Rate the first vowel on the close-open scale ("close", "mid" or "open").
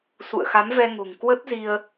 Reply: close